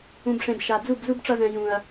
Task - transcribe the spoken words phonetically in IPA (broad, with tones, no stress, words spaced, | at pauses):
ũ˨bʂẽ˨b ʃa˨ d͡zu˦˨bzu˦b ʈ͡ʂʌ˧zɛ̃˨ jũ˨ɐ̯